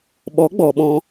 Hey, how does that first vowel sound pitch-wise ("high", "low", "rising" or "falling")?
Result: rising